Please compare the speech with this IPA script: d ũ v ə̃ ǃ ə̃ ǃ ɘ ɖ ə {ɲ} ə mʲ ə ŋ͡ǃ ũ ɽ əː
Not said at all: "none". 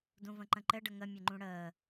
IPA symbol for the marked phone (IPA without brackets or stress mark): ŋ